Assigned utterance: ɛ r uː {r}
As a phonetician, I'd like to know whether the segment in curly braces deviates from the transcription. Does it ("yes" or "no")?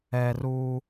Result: yes